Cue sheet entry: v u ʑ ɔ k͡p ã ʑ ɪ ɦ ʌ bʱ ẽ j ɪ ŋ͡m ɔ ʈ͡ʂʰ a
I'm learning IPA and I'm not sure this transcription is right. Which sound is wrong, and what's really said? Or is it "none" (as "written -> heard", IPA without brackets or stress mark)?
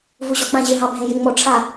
ʌ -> ɑ